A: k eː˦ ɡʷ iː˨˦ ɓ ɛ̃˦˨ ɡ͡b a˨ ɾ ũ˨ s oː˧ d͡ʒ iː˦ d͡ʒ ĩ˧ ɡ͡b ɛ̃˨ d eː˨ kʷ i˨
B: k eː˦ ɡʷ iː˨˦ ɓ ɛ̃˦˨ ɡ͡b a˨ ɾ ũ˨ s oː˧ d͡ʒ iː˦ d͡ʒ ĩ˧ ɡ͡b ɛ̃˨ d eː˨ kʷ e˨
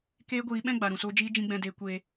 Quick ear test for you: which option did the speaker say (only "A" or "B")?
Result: B